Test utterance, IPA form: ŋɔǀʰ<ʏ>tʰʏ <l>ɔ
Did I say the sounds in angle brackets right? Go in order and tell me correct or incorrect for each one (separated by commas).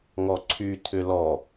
incorrect, correct